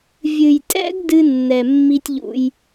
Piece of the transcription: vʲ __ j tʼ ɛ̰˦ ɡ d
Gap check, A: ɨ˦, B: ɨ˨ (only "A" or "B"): B